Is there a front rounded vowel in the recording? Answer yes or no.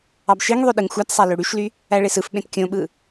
yes